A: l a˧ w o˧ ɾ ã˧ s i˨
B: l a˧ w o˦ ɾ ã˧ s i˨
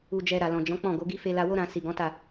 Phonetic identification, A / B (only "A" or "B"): B